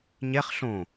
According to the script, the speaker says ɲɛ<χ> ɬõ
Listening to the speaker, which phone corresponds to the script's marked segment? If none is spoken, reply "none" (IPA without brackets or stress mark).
χ